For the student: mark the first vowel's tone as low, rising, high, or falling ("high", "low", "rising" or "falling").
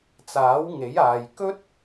rising